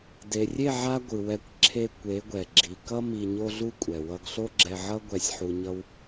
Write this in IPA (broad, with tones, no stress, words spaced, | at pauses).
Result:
de˨rʲe˦˨ʕa˧ ɡʷɯ˨wɛ˧kʷ ǁʰe˧ kʷe˨˦ɡʷɛ˨ ɡ͡ǁi˨kʌ˦ mi˧ɲo˦ɮu˦kʷʼɛ˨ wʌ˧ɡɬo˦ɡ͡ǁɛ˧ʕʌ˦ ɡʷɛ˧sʲ ħu˧ɲʌ˦w